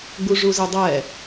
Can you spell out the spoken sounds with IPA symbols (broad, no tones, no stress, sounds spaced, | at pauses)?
ɡ͡b u ʐ u z e dˤ ɛ